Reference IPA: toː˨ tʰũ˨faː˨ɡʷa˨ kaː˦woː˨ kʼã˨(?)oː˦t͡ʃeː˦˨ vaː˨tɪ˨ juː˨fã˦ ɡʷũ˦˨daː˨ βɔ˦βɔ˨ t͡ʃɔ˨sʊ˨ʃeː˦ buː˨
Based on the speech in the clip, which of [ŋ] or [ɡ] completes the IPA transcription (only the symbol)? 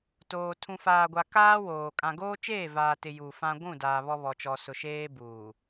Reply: ɡ